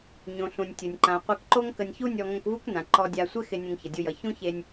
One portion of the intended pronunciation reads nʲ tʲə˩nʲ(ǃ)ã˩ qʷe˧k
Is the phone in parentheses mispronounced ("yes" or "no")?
no